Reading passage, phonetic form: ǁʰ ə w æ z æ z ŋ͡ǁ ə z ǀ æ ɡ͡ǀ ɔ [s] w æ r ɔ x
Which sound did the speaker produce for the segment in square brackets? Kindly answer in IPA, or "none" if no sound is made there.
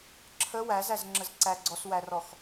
s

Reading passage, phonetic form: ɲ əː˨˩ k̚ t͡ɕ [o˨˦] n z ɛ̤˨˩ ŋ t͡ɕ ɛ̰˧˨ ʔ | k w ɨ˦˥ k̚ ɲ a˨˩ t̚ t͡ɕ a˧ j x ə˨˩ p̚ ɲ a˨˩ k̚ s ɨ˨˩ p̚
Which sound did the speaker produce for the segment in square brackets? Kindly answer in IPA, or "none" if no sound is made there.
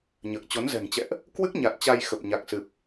o˨˦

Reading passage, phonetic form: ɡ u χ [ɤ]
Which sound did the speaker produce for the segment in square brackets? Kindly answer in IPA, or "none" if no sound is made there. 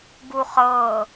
ɤ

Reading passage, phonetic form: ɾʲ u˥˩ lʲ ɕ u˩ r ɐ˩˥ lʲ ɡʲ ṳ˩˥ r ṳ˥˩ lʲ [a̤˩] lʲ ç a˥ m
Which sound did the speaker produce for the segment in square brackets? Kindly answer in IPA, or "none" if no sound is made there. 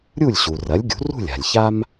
a̤˩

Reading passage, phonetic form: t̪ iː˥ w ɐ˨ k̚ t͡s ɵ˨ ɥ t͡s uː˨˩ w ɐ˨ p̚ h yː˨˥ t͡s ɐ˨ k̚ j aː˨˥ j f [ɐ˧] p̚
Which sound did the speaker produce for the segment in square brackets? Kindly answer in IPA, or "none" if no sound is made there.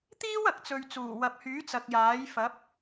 ɐ˨˥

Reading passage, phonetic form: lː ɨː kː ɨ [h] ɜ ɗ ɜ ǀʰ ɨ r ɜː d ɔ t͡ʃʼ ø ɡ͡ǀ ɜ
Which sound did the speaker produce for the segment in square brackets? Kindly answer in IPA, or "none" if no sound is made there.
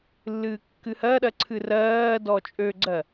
h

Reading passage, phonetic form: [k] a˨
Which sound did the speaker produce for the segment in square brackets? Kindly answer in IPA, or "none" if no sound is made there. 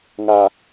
ŋ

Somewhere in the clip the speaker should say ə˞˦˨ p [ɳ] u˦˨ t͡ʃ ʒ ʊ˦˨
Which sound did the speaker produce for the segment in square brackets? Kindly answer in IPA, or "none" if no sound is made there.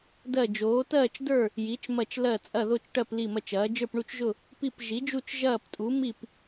ɳ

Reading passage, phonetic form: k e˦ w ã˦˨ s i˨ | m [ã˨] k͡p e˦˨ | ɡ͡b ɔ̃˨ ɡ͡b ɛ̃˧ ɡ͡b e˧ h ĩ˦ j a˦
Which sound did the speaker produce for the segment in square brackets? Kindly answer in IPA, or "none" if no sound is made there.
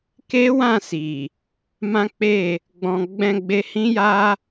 ã˦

